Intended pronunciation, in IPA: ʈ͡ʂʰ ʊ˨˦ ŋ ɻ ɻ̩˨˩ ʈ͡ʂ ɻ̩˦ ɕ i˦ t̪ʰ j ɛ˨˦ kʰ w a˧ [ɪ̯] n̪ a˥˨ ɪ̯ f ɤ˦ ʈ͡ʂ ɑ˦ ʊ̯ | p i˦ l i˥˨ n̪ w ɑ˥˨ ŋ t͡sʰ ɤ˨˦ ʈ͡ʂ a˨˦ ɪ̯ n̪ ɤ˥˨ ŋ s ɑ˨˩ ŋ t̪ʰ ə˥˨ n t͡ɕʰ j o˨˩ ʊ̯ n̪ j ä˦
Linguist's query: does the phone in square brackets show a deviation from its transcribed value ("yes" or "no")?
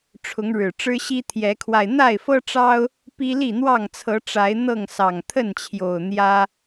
no